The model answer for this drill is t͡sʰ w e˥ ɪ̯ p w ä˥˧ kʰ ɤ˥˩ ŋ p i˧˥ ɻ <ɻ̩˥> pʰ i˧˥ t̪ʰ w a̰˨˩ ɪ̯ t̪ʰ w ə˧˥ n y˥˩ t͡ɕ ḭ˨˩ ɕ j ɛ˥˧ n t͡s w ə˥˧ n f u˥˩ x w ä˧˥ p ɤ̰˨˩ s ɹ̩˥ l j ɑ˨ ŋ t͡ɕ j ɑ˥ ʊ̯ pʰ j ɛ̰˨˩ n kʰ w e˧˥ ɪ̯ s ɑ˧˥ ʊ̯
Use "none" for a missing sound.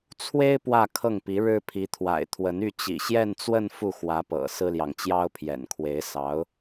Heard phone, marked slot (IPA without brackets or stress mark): ɻ̩˥